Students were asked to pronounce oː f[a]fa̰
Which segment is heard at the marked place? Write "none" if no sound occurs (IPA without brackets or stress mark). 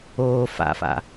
a̰